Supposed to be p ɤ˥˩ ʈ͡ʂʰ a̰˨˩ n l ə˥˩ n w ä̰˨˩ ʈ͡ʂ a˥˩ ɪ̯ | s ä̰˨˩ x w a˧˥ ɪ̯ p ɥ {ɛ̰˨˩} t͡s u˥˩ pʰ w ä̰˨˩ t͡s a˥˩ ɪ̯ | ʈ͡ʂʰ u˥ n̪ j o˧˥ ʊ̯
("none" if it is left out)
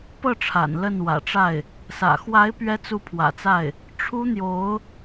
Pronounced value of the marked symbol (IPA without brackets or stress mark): ɛ˥